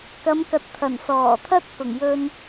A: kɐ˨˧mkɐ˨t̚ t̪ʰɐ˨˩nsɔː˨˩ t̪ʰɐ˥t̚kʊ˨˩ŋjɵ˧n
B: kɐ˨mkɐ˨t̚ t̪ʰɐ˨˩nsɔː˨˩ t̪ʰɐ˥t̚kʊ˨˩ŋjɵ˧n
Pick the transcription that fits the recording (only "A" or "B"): A